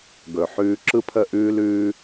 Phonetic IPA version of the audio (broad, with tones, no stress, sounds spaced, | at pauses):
ɡ ɵ˨ ħ ʉː˧ ǁ ɯ˦ pʰ ə˦˨ ʔ ʉː˦ l ʉː˦